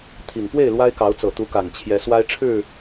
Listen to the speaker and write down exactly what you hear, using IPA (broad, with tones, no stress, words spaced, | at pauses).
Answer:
t̪ʰi˨˩ŋ pwe˥˨ɪ̯ lwa˦ɪ̯kɑ˨˦ʊ̯ t͡sɤ˨˩t̪u˨˦ ka˨˩nt͡ɕʰjɛ˨˦swa˦ɪ̯ʈ͡ʂʰɻ̩˥˨